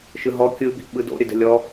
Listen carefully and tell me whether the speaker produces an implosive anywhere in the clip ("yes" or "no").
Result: yes